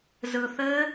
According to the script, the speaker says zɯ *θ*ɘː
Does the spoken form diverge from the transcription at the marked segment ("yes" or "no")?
no